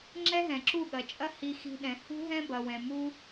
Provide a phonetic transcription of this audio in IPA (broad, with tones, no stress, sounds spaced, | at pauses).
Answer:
ŋ͡ǁ ɛ˦ ɦ ɛ̃˨ ǁ u˦˨ ɠ ɐ˨ t͡ʃʼ ɐ˦ h i˧ x i̤˧ ɗ ɛ̃˨ h ṳ˦ ɦ ɛ̃˦ b ɐ˨ w ɛ̃˨ m u˦